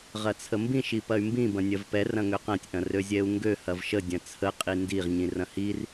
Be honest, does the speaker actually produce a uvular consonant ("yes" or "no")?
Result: yes